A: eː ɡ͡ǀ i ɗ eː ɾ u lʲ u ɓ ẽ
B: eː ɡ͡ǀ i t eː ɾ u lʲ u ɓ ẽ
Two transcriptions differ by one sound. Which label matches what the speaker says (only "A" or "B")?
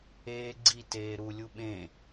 B